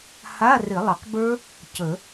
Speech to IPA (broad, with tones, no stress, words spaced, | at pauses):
ha˧˥˧rɪ˨˩˦lˠə˨˩qbə˞˦˥ | cə˨˩˦